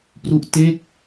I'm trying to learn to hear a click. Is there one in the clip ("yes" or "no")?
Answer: no